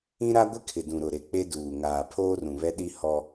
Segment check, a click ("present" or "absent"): absent